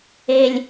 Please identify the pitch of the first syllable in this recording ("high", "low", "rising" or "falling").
low